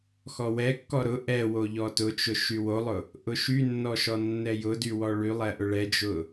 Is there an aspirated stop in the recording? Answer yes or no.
no